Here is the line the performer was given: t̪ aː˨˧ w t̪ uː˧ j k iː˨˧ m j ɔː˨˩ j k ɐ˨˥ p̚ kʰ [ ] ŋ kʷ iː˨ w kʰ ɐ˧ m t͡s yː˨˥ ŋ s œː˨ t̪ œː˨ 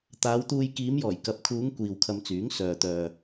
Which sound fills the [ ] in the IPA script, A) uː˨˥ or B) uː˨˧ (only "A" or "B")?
B